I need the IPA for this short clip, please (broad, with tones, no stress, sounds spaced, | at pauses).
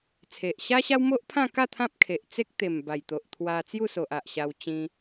t͡sʰ e˨ ʔ ɕ a˦ ɕ a˦ w m o˦ ʔ pʰ ã˥˧ k a˥˧ t̪ʰ ã˦ p̚ kʰ e˨ ʔ t͡s e˦ k̚ t̪ e˨˩ m b a˨˩ j t̪ o˨ ʔ t̪ʰ w a˧ t͡s j u˥˧ s o˨ ʔ a˨ ʔ ɕ a˧ w t͡ɕ ĩ˧